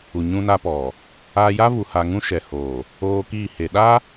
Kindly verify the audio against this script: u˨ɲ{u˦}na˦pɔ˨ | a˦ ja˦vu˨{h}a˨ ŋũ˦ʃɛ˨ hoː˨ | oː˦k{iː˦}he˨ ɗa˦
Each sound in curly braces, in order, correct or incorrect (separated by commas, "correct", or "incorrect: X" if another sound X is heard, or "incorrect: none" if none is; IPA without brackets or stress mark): incorrect: ũ˦, correct, incorrect: iː˦˨